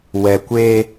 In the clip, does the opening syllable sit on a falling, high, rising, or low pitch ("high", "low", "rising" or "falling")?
low